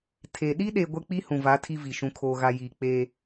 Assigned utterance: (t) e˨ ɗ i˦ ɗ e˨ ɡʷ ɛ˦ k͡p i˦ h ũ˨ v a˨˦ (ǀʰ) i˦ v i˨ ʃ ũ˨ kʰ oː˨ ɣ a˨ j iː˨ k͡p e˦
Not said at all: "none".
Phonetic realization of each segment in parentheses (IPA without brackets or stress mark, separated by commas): tʰ, tʰ